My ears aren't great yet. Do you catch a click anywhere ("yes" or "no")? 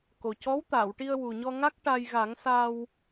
no